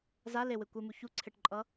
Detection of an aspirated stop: present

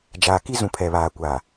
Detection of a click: absent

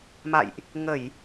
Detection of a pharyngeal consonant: absent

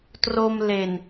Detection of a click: absent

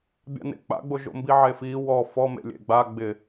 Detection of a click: absent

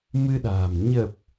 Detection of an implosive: present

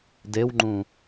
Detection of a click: present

